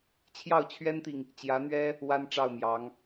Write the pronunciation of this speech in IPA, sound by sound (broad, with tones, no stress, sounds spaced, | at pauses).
t͡ɕʰ j ɑ˥˩ ʊ̯ t͡ɕʰ ɥ ɛ˥ n t̪ i˨ ŋ | t͡ɕ j ä˧˥ n̪ ɥ ɛ˥ | w a˥ n ʈ͡ʂ ɑ˥˩ ʊ̯ m j ɑ˧˥ ŋ